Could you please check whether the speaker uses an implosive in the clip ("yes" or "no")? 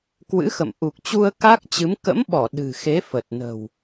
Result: yes